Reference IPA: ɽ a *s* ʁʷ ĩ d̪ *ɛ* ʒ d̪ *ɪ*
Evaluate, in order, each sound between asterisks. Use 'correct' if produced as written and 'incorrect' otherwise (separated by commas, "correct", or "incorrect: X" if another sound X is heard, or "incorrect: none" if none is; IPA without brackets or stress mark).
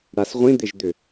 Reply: correct, incorrect: ɪ, incorrect: ʏ